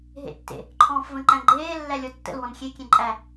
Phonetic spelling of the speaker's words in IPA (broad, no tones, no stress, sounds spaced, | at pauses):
ɦ ḛ tː ḛ | ǃʰ ɔ̃ː f v ə̃ ǃ æ̃ ɡ͡ǃ eː lː æ lʲ ɔ tː ə̰ l w ɔ̃ n xʲ e kʲ ẽ ǃʼ æ